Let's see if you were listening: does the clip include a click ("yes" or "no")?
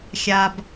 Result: no